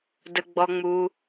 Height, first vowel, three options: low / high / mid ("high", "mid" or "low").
mid